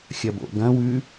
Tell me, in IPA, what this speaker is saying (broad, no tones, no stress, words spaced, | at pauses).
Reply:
xʲɐbo̰ɡɐ̃ wʉ